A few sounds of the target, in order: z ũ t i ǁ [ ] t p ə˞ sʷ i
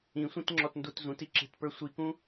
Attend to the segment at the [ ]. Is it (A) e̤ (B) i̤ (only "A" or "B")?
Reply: A